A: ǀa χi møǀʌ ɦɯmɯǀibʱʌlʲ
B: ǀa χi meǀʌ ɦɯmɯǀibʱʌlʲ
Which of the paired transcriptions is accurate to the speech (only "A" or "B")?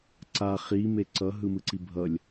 B